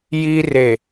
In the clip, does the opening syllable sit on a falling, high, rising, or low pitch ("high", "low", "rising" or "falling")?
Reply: high